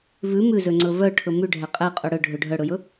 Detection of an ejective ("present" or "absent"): present